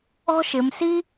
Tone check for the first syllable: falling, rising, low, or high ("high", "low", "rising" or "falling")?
high